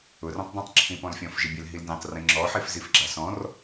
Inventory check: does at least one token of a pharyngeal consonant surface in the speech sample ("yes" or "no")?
yes